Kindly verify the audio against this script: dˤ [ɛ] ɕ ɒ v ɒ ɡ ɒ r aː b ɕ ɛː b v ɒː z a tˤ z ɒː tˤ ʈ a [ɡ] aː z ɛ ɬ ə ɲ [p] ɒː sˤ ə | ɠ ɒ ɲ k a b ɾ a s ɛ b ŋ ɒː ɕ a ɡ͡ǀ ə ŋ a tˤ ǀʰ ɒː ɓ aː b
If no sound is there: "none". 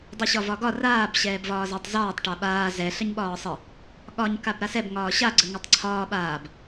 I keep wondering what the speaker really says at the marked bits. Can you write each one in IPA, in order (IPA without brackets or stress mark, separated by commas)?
ɛ, ɓ, ɓ